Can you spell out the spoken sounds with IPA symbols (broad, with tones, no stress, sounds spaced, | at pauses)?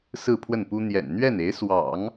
s ɹ̩˥˧ pʰ w ə˥˩ n p u˥ n̪ j ɛ̰˨˩ n n̪ ɥ ɛ˥˩ n e˧˥ ɪ̯ s w ɑ̰˨˩˦ ŋ